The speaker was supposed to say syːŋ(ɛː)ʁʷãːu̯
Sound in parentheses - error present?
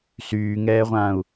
no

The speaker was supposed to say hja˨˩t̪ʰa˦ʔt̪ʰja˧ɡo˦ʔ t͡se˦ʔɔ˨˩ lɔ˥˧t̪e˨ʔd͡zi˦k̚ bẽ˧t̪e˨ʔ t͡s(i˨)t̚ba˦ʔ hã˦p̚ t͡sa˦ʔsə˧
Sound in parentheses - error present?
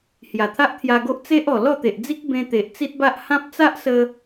yes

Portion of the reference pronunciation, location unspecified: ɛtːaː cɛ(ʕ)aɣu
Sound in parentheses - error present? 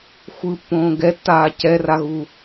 yes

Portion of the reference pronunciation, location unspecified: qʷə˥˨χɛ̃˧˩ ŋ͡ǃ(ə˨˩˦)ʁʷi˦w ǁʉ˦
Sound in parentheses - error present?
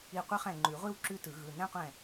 yes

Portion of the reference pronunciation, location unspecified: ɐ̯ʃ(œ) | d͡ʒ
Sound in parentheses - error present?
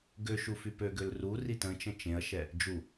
yes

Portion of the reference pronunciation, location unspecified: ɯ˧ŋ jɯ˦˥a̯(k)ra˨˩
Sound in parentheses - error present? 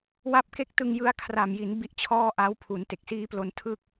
yes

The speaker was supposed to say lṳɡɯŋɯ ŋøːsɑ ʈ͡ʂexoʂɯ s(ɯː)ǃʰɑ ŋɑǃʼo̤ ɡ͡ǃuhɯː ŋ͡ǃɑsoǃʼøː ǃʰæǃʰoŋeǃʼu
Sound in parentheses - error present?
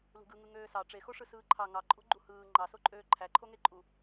no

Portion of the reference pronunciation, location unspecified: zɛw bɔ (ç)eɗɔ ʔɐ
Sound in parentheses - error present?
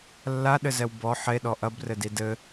yes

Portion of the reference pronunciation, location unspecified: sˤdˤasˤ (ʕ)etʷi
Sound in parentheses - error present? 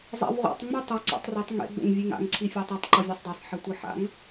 yes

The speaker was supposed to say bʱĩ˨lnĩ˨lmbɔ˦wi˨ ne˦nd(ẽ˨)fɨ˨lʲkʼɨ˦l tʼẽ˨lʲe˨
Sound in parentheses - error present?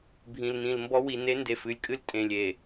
yes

